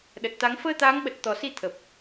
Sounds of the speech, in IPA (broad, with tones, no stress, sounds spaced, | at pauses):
ɗ ə˨˩ t̚ t̪ a˨˦ ŋ f əː˧ t̪ aː˨˦ ŋ ɓ ə˨˩ t̚ t̪ ɔ˨˩ s i˧ t̪ʰ ə˨˩ p̚